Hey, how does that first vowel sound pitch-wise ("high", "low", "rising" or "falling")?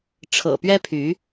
low